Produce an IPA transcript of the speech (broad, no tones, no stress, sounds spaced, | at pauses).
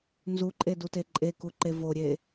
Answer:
n z u ǃʼ e d u t e ǃʼ e k u ǃ e v o ɾʲ e